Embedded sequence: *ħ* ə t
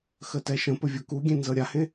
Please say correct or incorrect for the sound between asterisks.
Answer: incorrect